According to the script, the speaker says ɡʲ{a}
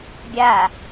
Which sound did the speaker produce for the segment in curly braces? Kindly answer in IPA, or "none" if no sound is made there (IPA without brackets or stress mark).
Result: a